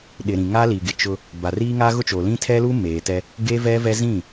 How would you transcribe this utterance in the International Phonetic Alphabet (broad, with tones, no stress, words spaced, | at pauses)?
ɗɪ˨ɾĩ˨ŋa˦li˨ ɡɪ˨ t͡ʃʊ˦ | ba˨riː˦ŋa˦ ɣʊ˦t͡ʃo˨lĩ˦ tʰɛ˦lu˦ meː˨tɛ˦ | ɡe˦vɛ˦vɛ˦ zĩ˦˨